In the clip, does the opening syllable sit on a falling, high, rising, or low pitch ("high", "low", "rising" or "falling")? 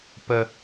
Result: low